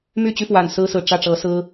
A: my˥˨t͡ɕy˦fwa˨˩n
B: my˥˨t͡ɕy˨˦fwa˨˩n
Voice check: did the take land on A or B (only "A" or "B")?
A